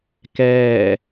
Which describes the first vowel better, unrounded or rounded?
unrounded